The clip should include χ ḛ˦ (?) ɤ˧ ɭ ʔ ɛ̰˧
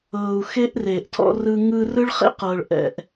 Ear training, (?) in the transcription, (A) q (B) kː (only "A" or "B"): A